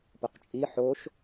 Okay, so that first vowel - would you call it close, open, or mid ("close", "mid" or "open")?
close